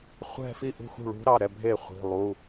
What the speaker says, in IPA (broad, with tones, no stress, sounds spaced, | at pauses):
χʷ ɛ̤˥˧ f i˥˩ ʔ ṳ˥˩ x ṳ˥˩ ɭ ṳ˧˥ ɾ ɑ˩˧˩ ɾ ɛ˥˩ bʱ e˥˩ χʷ i̤˩˧˩ lˠ u˩˧˩